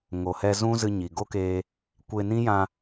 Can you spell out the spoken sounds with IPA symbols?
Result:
ŋo˨hɛ˧zũ˦ zɨ˧ɲi˨ɡo˦keː˧ | kʷe˧nĩ˦jã˧

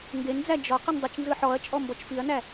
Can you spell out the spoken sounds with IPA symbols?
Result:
ŋɡend͡zæ d͡ʒɔ qɯndˤɯt͡ʃnzɯ ħɔɐ̯t͡ʃʼɔ mbɔt͡ʃfiɐ̯næ

